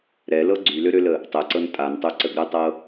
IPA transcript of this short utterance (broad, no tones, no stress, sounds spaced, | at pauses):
ɾ ɛ l ɤ ɡ͡ǀ y l ø ɾ ø l ə | tˤ ɛ ǀ ɤ n tʼ a n tˤ ø ǀ ə ɡ ɾ ə tˤ ɤ